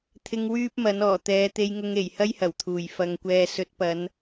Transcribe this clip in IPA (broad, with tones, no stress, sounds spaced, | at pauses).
t̪ʰ ɪ˧ ŋ w yː˥ p̚ m ɐ˨˥ n ɔː˨˩ t̪ ɛː˨˧ t̪ e˧ j ŋ ʊ˧ ŋ e˨˩ j h ɐ˥ j h ɐ˨˩ w t̪ʰ uː˨˩ j f ɐ˨ ŋ kʷ ɛː˨ s ɵ˨˥ t̚ p ɐ˨˧ n